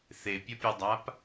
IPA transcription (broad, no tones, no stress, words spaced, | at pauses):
θepʲʌpʲudˤap